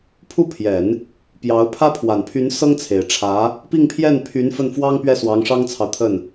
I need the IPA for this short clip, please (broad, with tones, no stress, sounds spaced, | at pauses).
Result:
pʰ u˥˩ pʰ j ɛ˨˩˦ n | p j ɑ˧˥ ʊ̯ pʰ ä˥ pʰ w a˨˩ n pʰ y˧˥ n s ɤ˥ ŋ t͡sʰ e˨˩ ɪ̯ ʈ͡ʂʰ ä˧˥ | p i˥˧ ŋ pʰ j ɛ˥˩ n pʰ y˧˥ n f ə˥˩ n f w ɑ˥ ŋ p ɥ ɛ˥˩ s w ɑ˧˥ ŋ ʂ ɑ˥ ŋ t͡sʰ ɑ˨ ʊ̯ t̪ʰ ə˥˩ n